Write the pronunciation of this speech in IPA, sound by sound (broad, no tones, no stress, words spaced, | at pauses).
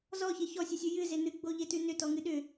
zɔçe çɔsʲesʲʉ jɨze nɨɡ͡boʎetʉ nʏtɔŋɨ ɗʏ